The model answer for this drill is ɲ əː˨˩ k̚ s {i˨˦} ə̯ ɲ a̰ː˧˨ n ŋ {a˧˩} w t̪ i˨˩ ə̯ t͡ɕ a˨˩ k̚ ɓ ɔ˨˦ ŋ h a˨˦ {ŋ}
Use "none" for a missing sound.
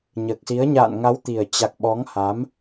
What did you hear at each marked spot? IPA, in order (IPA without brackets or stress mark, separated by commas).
i˨˦, a˨˦, m